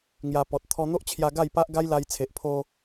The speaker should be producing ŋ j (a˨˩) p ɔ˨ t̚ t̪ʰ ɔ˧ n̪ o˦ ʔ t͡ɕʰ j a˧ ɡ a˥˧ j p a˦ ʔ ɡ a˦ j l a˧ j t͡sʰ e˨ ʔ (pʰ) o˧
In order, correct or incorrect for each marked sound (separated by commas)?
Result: incorrect, correct